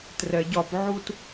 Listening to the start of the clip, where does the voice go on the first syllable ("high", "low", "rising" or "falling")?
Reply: low